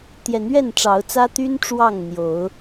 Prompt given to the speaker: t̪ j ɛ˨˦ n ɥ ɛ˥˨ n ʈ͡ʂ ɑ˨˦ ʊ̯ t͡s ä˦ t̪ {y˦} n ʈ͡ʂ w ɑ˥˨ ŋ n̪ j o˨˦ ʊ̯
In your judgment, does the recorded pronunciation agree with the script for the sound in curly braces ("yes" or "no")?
yes